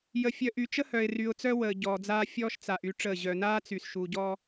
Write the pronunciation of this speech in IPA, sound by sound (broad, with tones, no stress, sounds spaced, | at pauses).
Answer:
j ə˨ fʲ œ˨ ʔ y˨ t͡ʃ ə˦ h œ˨ ɪ̯ r y˨ ʊ̯ t͡s œ˦ w əː˨ ɟ ɔː˨ d͡z aː˦ fʲ ɔː˦ ʃ t͡s a˨ ʔ y˦ ʈ͡ʂ əː˦˨ ʑ œ˨ n aː˦ t͡s y˨ s ʃ u˨ ɟ ɔ˦